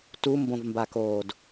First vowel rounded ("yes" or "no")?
yes